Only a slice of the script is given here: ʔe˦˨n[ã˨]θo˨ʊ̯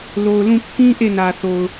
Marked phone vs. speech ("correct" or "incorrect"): incorrect